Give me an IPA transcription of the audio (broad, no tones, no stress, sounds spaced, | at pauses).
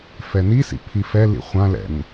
f ɛ n i s ḭ pʰ i f ɛ l ḭ χʷ ã l ɛ̰ n